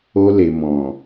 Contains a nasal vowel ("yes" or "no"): yes